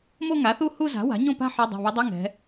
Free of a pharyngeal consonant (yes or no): no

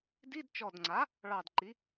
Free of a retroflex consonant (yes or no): no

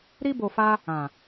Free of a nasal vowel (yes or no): no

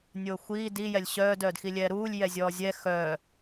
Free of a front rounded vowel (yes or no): no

